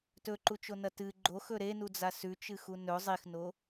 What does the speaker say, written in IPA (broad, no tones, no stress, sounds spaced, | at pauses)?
t ɵ ǃ u t͡ʃ o n ɐ t ɨ ɡ͡ǃ o x ɵ ɾ e n u d͡z a s ʉ t͡ʃ ɨ x u n ɵ zˤ i x n o